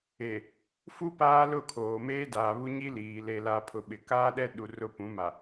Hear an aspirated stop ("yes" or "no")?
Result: yes